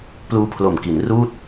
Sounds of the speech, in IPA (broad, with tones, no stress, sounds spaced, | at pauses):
p l uː˦˥ pʰ l o˨˩ m k i˩˦ n r uː˥˩ t̚